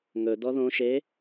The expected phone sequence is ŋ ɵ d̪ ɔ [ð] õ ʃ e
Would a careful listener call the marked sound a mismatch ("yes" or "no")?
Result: no